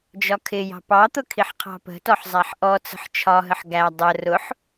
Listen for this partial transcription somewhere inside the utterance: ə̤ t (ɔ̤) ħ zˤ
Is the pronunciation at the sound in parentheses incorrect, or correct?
incorrect: ɔ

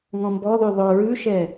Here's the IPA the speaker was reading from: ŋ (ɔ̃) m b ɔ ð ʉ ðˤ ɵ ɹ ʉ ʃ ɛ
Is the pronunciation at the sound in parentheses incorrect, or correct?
correct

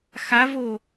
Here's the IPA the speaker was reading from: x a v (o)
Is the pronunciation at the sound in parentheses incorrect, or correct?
correct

